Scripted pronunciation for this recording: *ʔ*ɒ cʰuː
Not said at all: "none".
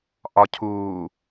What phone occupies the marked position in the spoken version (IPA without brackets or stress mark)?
ʔ